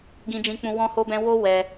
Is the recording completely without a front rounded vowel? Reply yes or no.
yes